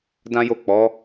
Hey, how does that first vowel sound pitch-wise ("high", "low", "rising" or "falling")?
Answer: high